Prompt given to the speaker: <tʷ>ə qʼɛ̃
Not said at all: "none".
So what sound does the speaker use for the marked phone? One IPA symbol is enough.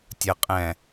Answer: tʲ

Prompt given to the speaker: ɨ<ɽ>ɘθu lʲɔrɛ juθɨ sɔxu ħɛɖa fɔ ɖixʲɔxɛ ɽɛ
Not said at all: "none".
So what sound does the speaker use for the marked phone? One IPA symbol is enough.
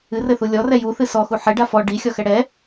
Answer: r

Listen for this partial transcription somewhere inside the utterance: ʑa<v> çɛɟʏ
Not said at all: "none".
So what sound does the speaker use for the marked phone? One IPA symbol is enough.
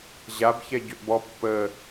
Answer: b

